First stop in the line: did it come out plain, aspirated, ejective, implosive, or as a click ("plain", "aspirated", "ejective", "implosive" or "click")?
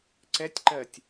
click